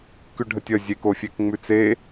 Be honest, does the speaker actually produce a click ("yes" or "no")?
no